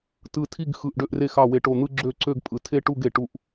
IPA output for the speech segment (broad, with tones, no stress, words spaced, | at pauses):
tɯ˧˩tʰi˥˧ɡxɯ˧˩ʔ ɖø˥˧ʔre˥˧x ɑ˧˩we˧˩ ʈo˧˩n̪ɯ˥˧ ɡ͡ǁø˥˧ ǀø˥˧ɡpʼɯ˧˩ tʰe˥˧ʈu˥˧ɡ e˧˩ʈu˥˧ʔ